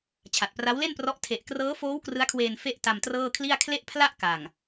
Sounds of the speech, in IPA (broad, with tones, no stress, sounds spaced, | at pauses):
t͡ɕʰ a˨˩ t̚ p r a˦˥ w l e˥˩ n p r ɔ˦˥ ʔ tʰ e˨˩ ʔ k r ɤː˦˥ f oː˦˥ w k r ɯ˦˥ a̯ kʰ w eː˧ n f e˥˩ ʔ t a˧ m t r ɤː˥˩ kʰ l i˥˩ a̯ kʰ l e˥˩ ʔ pʰ l a˥˩ ʔ k a˨˩ ŋ